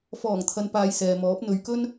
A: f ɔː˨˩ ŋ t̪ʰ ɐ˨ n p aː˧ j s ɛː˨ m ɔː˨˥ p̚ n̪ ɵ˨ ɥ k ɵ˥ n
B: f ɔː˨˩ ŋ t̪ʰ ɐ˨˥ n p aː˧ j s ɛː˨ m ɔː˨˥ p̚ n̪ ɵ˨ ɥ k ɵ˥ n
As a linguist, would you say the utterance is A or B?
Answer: A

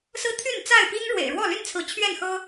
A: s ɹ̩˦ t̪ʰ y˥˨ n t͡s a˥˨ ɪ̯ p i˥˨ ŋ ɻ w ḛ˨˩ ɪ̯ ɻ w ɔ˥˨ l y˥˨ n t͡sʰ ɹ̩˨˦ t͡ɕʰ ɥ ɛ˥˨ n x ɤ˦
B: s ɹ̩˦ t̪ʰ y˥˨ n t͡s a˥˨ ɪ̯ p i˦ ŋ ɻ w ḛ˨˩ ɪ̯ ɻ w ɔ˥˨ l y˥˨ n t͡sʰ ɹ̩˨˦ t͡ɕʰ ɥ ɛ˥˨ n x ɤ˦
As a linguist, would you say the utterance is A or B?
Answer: B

